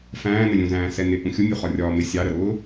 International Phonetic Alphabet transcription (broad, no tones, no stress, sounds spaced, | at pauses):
f æ̃ː n ə lʲ ũ z æ̃ː s ɛ n ɪ ʔ ũ xʲ ʊ mʲ u χ ɒ rʲ ɒː m ɪ sʲ ɑ ɾ ə ɾ ʊː